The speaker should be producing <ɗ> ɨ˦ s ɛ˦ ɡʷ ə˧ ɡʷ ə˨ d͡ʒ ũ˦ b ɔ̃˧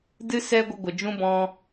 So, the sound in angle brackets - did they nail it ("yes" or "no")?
no